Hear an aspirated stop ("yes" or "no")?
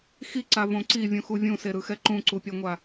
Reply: no